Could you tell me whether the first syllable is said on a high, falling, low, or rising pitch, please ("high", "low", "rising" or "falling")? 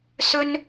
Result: high